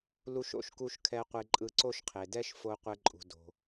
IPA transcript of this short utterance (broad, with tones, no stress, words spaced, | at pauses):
lu˧ʃo̰˧ʃku˧ʃ kʰɛ˧ qʷe˧ǃʼɯ˧ǀo˥ʃqʰe˩ dɛ˥ʃfo˧qʷɛ˧ ǃʼṳ˩do̤˩